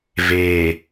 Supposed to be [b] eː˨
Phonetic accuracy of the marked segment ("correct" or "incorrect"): incorrect